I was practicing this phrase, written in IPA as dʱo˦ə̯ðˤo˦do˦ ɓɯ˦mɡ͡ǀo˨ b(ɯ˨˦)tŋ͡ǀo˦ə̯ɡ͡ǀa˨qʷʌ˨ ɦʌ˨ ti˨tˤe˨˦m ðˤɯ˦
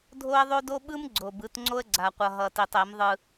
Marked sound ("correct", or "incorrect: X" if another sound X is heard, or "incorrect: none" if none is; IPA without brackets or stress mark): correct